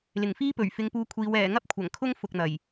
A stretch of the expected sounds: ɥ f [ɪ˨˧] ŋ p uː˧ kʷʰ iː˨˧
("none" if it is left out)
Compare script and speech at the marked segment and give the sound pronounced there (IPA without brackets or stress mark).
ɪ˨˧